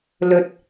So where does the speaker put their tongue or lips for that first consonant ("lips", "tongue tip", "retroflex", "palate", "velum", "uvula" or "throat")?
tongue tip